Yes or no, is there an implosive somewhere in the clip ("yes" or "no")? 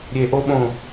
yes